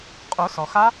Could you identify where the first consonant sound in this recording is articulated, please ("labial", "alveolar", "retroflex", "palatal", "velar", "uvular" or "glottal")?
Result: uvular